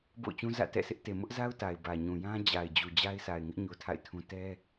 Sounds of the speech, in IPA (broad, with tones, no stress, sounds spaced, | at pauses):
b o̰˦˨ ʊ̯ t͡ɕ ũ˦ z ä̰˦˨ t ɛ̰˦˨ sʰ ɪ˦ ʔ t e˨ m ʊ˦ ʔ z a˦ ʊ̯ t a˨ ɪ̯ b ä˨ ɲ ũ˨ j ã˦ d͡ʑ a˨ ɪ̯ d͡ʑ u˨ d͡ʑ a˦ ɪ̯ sʰ a˨ ɪ̯ ŋ ɪ˦ ʔ ɲ o˦ tʰ a̰˦˨ ɪ̯ tʰ ũ˦ t ɛ˦